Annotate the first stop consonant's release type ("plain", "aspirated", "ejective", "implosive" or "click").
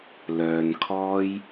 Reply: aspirated